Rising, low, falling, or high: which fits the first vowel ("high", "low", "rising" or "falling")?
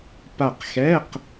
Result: falling